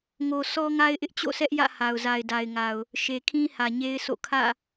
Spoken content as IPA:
ŋ o˨ sʰ ɔ˦ ŋ a˦ ɪ̯ ʔ ɪ˦ ʔ t͡ɕ o̰˦˨ s ɛ˦ ʔ j ä̰˦˨ h a˨ ʊ̯ z a˨ ɪ̯ d a˨ ɪ̯ ŋ a˨ ʊ̯ | ʃ e˨ kʰ ĩ˦ h ä˨ ɲ e˦ ɪ̯ s o̰˦˨ kʰ ä̰˦˨

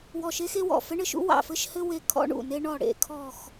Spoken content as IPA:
w ɔ˦˨ ʃ e˥ x e˥ w ɔ̰˦˨ f ɘ˥ ɳ ɘ˥ ʃ ṵ˥ w ɑ̰˦˨ f ɘ˥ ʃ h ɘ˥ w e˦˨ kʰ ɔ̰˥ ɳ ṵ˦˨ n e˥ ɳ ɔ˦˨ ɽ ḛ˦˨ kʰ ɔ˦˨ x

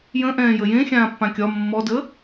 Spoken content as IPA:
j ə̃ ʔ ɛ̃ː j ə j ẽ xʲ ãː pː ã kʲ ɒ mː ɔ d ə

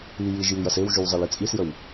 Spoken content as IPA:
i j i ʒ j i j ɐ s e w ʒ y w zˤ e l i t͡sʼ i s j ə w

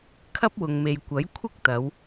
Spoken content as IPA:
kʰ ɐ˥ p̚ w ʊ˨ ŋ m e˨ j kʷ ɐ˨˥ j kʷʰ ɪ˥ k̚ t̪ ɐ˨˧ w

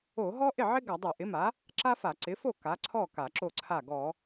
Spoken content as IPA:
o˧˩˧ ɦ ɔ˥ ʔ ɪ˥˩ ʕ ɪ˥ ɡ a˧˩˧ dˤ o˧˩˧ ʔ ɪ˩˥ m a˩˥ | ǁ a˥ f a˧˩˧ ǀ ɪ˩˥ f o˥˩ k a˩˥ ǀʰ ɔ˥˩ k a˧˩˧ ǁ o˥˩ ǀʰ a˥˩ ɡ ɔ˧˩˧

